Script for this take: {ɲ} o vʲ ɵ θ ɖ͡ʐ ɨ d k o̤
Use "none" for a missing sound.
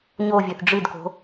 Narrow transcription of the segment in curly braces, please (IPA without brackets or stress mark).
ɲ